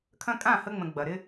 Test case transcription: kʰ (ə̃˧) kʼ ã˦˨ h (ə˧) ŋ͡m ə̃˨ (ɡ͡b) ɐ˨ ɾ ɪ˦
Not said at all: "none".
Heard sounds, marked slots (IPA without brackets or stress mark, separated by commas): ɐ̃˧, ə˧, ɡ͡b